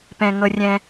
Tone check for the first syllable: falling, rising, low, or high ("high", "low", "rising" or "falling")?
low